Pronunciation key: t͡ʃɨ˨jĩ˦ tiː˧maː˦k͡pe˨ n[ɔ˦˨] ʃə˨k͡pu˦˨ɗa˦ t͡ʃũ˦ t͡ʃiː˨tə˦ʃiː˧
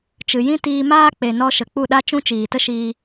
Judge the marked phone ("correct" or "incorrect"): incorrect